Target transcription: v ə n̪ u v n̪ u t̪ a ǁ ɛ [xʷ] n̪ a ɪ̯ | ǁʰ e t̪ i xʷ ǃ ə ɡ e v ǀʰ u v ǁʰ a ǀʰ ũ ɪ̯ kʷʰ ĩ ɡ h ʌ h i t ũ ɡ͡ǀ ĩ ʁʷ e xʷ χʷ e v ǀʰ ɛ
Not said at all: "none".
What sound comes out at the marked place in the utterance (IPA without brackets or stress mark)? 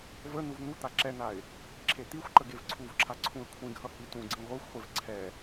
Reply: none